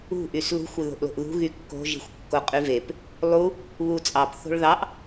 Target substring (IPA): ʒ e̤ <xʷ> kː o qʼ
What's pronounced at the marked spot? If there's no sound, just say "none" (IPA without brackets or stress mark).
xʷ